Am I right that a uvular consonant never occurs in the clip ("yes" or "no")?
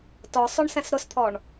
yes